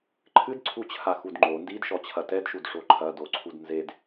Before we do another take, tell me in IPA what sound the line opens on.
ǃʰ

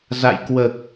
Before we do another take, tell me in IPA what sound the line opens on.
z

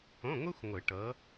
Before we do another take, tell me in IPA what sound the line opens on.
õ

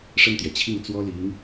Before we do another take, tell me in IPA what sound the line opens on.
ʂ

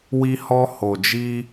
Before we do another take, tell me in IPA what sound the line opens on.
w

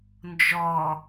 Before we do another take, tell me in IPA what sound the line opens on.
n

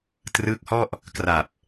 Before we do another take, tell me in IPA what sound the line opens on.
t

